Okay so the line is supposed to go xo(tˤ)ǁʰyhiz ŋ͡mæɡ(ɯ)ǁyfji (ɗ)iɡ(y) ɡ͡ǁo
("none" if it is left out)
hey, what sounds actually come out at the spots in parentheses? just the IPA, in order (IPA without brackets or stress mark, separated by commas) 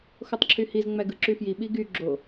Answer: tˤ, ɯ, ɓ, y